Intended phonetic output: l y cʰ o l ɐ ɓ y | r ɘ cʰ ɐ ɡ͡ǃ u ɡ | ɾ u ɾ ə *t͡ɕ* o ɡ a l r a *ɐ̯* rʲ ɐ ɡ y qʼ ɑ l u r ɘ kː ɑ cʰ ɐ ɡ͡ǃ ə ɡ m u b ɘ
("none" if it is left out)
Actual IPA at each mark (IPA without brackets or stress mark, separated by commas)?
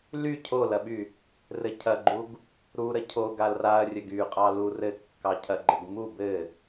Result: cʰ, ɐ̯